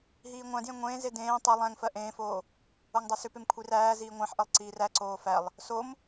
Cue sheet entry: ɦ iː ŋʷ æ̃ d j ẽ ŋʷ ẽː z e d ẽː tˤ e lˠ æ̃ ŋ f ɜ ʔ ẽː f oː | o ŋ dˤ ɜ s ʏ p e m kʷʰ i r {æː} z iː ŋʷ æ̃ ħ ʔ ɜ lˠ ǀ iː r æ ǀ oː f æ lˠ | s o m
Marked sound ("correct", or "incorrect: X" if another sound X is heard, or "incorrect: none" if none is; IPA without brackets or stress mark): correct